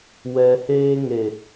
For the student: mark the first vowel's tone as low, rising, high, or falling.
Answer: low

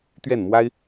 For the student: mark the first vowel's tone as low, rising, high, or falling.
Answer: falling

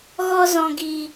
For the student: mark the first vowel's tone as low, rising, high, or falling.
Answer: high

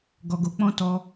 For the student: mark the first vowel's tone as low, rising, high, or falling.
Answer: low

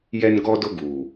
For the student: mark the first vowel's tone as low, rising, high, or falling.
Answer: high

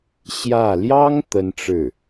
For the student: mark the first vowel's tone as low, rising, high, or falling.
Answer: falling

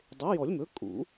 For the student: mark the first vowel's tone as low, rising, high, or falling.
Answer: rising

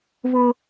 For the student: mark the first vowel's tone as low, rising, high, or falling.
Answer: high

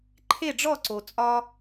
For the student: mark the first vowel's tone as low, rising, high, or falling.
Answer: falling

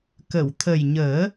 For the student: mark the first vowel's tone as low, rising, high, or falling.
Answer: low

